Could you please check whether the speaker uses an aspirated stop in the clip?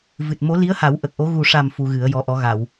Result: no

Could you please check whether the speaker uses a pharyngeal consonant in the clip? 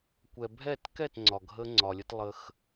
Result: no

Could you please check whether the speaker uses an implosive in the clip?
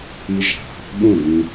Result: yes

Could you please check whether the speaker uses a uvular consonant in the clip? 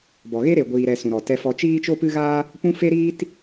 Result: no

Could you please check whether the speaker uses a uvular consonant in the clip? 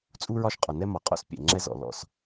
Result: yes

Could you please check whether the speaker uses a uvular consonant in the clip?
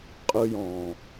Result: yes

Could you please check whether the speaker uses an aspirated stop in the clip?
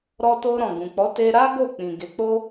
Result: no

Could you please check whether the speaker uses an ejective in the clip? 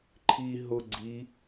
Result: no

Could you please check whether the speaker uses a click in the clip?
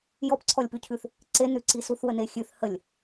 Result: yes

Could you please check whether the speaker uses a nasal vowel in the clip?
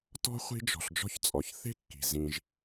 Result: yes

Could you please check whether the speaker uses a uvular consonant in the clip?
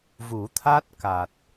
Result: no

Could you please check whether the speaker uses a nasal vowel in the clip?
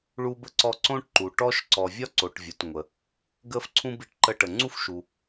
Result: yes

